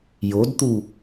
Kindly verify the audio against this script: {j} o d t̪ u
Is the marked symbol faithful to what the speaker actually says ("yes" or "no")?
yes